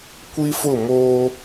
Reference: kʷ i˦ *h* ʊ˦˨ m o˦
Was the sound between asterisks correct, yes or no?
no